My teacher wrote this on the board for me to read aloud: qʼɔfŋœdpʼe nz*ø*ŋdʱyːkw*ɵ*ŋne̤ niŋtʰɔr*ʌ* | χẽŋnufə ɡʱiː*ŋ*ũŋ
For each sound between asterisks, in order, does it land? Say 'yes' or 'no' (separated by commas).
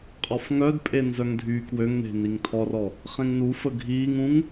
no, no, no, yes